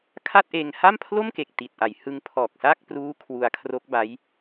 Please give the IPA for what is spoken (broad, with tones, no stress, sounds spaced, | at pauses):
kʰ a˥˩ t̚ ʔ eː˧ ŋ h a˥˩ m pʰ l o˥˩ m k e˨˩ k̚ t i˨˩ t̚ ʔ a˩˦ j h ɯ˧ ŋ pʰ ɔː˨˩ k̚ s a˥˩ k̚ p r uː˦˥ kʰ w u˧ a̯ kʰ r o˦˥ k̚ b a˦˥ j